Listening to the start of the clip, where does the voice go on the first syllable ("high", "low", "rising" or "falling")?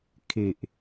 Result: low